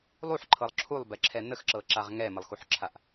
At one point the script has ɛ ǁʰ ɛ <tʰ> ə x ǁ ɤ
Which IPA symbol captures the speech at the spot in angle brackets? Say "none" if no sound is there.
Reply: n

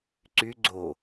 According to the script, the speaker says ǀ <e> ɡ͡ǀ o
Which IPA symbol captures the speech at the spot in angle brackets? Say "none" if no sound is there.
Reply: y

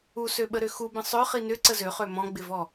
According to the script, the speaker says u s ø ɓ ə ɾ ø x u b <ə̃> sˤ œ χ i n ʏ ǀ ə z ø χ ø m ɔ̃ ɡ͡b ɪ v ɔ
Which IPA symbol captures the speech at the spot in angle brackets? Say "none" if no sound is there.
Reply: ə̃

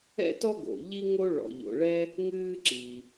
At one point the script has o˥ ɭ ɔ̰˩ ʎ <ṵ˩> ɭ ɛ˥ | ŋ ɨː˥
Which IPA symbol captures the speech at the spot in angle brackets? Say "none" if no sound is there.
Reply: o̰˩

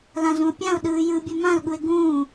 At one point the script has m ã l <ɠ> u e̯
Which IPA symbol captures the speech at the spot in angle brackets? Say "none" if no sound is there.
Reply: ɠ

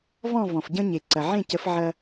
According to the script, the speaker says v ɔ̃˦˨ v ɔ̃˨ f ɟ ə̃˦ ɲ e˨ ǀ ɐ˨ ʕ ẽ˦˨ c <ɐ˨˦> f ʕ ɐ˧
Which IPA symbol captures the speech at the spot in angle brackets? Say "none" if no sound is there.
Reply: ə˨˦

